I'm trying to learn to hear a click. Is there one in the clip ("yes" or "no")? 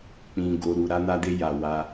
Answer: no